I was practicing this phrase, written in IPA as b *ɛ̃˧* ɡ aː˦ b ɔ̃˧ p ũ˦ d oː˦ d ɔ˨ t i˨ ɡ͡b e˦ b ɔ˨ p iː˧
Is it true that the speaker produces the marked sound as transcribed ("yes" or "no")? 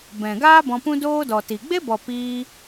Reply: no